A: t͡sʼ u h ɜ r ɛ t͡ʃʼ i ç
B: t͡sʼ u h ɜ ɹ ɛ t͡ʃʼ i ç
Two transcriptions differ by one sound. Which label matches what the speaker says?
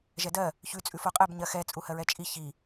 B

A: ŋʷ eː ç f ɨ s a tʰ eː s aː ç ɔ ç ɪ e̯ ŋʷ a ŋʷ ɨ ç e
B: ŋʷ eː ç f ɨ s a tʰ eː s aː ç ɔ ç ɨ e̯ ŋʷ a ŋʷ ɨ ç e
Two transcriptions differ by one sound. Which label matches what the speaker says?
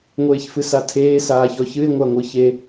B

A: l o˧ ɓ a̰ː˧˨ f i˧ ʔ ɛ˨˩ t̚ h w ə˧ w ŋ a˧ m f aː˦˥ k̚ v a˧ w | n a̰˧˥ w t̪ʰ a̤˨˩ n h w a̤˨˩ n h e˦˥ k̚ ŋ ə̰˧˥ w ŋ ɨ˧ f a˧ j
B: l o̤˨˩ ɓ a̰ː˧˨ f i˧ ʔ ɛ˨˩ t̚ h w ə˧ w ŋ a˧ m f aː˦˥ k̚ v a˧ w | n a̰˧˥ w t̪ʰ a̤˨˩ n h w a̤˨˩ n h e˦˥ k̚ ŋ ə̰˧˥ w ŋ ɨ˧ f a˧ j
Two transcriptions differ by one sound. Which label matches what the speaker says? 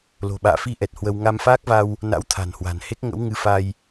B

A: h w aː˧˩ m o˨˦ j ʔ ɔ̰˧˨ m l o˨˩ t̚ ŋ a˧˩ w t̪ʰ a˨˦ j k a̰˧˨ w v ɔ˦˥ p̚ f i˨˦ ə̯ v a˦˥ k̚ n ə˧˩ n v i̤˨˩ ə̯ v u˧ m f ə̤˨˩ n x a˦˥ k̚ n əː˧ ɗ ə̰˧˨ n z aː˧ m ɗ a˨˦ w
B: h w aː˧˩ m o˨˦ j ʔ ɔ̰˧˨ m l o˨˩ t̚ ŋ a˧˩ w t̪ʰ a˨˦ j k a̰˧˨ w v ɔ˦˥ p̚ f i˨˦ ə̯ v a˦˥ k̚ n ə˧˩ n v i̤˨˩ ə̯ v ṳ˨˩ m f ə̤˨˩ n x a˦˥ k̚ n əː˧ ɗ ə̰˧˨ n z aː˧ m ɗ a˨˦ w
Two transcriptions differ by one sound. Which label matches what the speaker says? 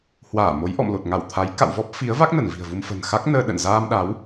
A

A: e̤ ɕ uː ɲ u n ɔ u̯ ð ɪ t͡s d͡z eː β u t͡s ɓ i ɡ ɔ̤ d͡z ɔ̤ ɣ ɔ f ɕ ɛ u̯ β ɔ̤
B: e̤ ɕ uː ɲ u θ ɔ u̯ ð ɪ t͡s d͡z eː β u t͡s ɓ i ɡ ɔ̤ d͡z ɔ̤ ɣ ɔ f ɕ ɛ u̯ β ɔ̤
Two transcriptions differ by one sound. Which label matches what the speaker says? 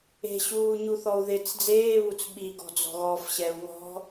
B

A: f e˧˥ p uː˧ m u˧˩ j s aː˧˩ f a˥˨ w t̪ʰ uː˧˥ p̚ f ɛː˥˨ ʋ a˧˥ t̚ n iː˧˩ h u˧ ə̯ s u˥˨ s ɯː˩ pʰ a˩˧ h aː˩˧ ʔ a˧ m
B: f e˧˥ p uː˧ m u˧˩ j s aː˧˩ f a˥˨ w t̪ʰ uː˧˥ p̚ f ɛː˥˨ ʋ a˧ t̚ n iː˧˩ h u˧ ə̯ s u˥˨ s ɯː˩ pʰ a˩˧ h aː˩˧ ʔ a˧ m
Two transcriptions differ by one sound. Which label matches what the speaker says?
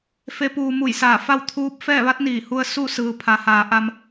A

